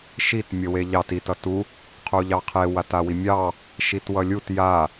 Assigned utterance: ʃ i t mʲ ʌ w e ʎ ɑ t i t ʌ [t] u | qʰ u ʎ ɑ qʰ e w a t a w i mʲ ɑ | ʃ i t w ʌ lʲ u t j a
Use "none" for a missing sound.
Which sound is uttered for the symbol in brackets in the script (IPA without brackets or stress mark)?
t